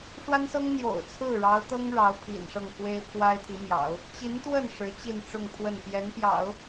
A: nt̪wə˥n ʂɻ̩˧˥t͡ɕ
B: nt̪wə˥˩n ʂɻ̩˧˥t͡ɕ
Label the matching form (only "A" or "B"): B